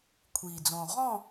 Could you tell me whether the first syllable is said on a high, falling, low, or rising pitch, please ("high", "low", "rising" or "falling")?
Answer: low